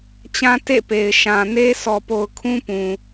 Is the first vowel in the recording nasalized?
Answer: yes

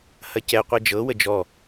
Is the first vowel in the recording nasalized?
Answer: no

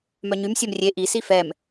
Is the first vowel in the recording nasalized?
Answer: no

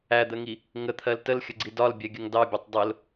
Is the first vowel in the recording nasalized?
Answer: no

